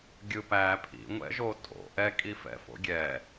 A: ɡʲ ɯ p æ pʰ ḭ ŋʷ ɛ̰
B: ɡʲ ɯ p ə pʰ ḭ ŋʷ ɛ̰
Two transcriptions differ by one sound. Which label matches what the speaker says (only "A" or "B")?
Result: A